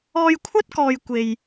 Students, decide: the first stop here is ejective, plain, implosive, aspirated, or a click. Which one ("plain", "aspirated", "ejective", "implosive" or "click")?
aspirated